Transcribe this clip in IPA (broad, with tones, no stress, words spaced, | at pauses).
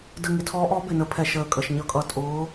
də˨˩ ŋɪ˨˩tʰɔː˨˦ʔɔː˨˦ bɪ˨˩nə˨˦pʰɛ˨˩ ʃəː˨˩kʼə˨˩ʃɲʌ˨˦kʼʌ˨˩ tʼʊː˨˦